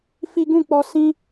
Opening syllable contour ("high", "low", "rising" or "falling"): high